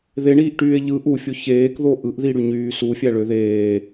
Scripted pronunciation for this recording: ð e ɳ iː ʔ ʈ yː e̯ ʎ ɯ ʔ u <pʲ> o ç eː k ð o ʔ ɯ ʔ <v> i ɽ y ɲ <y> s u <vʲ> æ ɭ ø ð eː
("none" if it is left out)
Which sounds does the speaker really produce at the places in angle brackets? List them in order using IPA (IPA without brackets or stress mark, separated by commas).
fʲ, ð, yː, fʲ